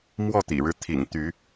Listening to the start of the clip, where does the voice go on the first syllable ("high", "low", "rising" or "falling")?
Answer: falling